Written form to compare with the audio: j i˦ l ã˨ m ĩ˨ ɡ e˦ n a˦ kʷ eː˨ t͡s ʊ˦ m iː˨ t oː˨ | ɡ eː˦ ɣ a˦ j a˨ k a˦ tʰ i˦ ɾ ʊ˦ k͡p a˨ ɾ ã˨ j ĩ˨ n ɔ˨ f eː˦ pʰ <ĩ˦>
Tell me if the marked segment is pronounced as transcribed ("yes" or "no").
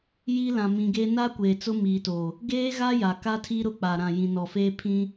yes